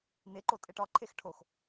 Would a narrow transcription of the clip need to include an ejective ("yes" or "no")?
yes